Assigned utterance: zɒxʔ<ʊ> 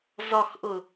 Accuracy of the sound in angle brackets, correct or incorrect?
correct